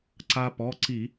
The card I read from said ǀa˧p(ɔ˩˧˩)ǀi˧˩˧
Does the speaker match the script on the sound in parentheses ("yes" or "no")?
yes